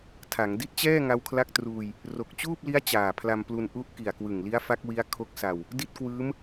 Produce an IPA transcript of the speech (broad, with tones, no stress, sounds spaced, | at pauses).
tʰ a˩˦ ŋ d i˦˥ t̚ t͡ɕ ɛː˥˩ ŋ a˦˥ w kʰ l a˥˩ k̚ t r uː˧ j | r o˨˩ k̚ t͡ɕ uː˥˩ p̚ l i˦˥ a̯ t͡ɕ aː˨˩ pʰ l a˧ m p l u˧ n ʔ u˦˥ ʔ k i˨˩ a̯ k w ɯ˨˩ ŋ l i˦˥ a̯ f a˦˥ k̚ w i˦˥ a̯ kʰ o˦˥ k̚ s a˧ w | d i˥˩ t̚ k w ɯː˦˥ m